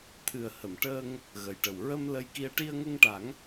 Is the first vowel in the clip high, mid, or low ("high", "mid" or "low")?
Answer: high